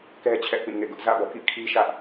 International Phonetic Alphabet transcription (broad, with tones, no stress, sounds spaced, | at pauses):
k ɛ˦ t͡ɕʰ ɛ˦ ʔ p ĩ˦˨ ŋ ḛ˦˨ ɡ ʊ˦ ʔ z ä̰˦˨ b ɔ̰˦˨ k ḭ˦˨ kʰ i˦ ʃ ä˦ ʔ